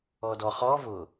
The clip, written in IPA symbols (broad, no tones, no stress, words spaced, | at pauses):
ɔdɔ χɔ vʊ